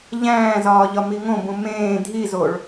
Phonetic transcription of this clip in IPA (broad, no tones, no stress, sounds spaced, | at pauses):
ʎ æ̃ː z ɒː ʎ ɒ m i ŋ õ b ũ m ẽː dʱ i z o ɭ